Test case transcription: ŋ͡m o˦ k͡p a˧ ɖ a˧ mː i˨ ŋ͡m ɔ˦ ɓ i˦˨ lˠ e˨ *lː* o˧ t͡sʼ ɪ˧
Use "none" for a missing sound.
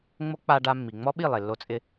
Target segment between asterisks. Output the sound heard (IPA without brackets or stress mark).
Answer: lː